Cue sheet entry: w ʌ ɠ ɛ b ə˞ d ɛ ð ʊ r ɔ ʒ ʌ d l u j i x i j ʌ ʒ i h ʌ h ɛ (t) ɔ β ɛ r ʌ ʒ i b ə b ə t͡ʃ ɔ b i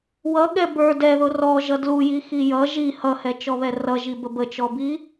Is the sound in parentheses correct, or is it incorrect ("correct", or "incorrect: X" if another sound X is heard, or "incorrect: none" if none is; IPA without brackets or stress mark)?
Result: incorrect: t͡ʃ